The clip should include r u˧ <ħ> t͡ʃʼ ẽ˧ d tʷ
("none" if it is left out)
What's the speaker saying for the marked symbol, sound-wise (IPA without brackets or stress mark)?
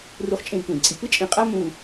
χ